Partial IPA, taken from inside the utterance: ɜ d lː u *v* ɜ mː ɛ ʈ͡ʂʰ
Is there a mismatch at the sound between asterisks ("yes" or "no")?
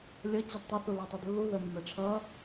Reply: yes